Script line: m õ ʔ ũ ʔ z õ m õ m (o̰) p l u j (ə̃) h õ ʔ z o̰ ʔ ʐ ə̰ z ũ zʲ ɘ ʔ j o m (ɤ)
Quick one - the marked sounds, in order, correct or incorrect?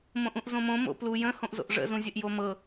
correct, correct, correct

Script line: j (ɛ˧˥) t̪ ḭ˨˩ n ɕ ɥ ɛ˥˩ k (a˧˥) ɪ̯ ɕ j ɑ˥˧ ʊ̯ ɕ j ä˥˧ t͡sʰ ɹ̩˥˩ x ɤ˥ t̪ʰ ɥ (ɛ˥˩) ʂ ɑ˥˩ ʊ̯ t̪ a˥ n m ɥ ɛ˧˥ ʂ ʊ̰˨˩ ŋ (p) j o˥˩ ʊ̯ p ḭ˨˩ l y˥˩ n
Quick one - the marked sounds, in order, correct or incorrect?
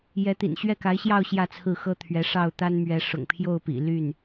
correct, correct, incorrect, incorrect

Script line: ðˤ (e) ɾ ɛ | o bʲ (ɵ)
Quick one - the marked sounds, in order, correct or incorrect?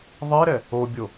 incorrect, incorrect

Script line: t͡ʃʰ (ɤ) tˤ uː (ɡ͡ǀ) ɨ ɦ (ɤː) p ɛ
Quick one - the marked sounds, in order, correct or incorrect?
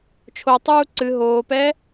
incorrect, incorrect, incorrect

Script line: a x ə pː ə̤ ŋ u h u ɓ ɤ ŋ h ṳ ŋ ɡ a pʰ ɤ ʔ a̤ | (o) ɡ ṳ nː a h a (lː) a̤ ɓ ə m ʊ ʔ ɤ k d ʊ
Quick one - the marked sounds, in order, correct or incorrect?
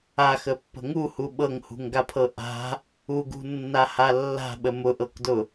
incorrect, correct

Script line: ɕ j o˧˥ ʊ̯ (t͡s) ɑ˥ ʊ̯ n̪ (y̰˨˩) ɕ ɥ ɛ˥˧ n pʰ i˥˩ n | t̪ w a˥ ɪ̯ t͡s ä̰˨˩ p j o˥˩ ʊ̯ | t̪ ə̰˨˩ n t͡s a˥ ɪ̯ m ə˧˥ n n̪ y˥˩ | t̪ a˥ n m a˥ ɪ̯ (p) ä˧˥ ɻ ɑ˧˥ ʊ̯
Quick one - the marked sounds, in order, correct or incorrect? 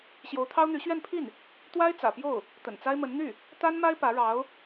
incorrect, incorrect, correct

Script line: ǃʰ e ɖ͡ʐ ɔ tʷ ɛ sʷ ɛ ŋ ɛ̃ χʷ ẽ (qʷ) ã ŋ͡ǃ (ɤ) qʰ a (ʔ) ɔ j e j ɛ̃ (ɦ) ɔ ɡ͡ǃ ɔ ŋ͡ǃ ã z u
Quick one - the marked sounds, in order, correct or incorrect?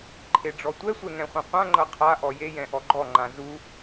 correct, correct, correct, incorrect

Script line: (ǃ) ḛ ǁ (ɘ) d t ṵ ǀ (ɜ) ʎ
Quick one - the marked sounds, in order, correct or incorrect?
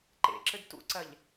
correct, correct, correct

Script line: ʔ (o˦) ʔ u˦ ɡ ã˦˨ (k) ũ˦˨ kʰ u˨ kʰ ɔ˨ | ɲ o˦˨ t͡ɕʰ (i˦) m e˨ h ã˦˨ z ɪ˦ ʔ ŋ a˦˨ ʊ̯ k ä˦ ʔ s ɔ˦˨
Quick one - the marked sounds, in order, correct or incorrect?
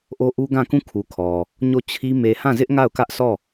correct, correct, correct

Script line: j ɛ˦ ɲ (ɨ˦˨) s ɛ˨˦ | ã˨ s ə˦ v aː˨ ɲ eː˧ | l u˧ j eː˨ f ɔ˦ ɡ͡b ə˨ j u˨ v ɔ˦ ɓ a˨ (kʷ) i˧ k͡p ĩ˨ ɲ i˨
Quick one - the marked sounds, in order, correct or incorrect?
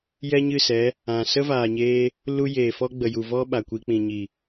correct, correct

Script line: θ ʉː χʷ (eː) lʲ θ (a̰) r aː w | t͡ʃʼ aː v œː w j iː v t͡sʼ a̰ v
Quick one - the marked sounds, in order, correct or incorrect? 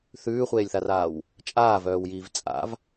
correct, incorrect

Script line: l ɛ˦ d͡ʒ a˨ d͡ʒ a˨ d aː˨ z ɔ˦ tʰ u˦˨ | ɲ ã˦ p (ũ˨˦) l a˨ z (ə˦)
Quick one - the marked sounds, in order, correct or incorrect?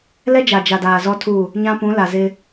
correct, incorrect

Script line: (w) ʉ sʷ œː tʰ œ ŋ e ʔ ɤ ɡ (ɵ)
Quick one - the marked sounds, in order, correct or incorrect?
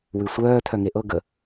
correct, incorrect

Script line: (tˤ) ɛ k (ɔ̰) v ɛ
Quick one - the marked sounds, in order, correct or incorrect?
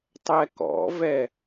correct, correct

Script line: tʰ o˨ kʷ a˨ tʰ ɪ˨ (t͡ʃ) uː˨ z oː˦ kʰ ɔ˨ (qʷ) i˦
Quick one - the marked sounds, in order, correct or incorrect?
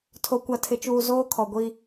correct, incorrect

